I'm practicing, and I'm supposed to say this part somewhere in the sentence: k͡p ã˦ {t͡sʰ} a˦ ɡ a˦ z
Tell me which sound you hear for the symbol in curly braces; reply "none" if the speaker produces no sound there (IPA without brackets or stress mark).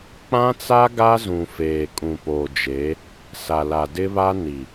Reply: t͡s